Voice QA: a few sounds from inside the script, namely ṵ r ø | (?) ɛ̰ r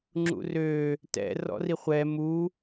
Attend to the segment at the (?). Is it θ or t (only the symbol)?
t